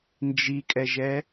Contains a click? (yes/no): no